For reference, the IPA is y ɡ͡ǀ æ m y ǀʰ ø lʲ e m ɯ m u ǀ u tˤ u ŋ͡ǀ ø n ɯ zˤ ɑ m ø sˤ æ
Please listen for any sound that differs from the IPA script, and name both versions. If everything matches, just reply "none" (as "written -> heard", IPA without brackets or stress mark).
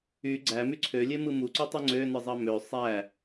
none